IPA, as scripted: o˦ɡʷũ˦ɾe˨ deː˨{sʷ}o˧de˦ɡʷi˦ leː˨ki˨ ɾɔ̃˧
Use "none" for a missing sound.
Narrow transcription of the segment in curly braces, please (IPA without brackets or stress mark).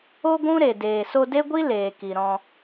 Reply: s